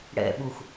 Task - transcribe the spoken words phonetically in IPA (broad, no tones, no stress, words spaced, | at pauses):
ɽɛ̰ɓux